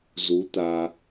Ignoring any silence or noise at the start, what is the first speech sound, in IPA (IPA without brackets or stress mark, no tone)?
z